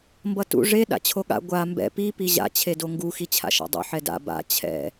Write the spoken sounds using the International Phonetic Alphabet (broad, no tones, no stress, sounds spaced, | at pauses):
m b ʌ t ṵ ʐ e ɗ a̰ t͡ɕʰ o ɠ a̰ ɡʷ a m b ɛ̰ p i p i ʑ a̰ t͡ɕʰ e d o ŋ ɡ u x i t͡ɕʰ a̰ ʃ a̰ dˤ ṵ ħ ɛ d a̰ b a̰ t͡ɕʰ ɛ̰